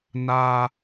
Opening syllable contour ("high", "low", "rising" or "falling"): high